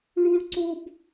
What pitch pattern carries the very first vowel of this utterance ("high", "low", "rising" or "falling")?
high